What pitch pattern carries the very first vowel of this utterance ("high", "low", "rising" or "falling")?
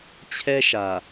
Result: high